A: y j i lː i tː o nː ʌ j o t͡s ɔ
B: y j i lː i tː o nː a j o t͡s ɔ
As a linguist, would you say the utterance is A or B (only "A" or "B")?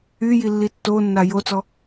B